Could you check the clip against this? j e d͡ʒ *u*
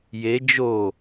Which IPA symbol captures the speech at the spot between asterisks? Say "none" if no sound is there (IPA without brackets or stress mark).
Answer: o